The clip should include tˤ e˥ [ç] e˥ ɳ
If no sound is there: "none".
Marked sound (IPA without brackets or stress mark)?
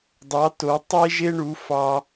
ʒ